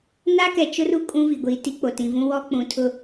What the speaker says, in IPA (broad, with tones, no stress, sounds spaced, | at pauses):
n a˦ k ɛ˨ t͡ʃ ʊ˦ r u˦ kʼ ũ˦ v i˨ ɡʷ iː˨ t i˦ k͡p o˨ t ĩ˨ v ũ˦ w ɔ˦ k͡p ũ˨ tʰ ʊ˦